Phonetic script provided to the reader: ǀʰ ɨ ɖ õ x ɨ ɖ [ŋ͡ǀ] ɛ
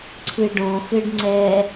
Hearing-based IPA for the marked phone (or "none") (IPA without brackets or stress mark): ŋ͡ǀ